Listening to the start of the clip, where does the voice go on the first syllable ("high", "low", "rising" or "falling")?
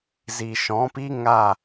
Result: low